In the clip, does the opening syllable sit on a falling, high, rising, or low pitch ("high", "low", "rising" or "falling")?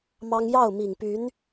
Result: high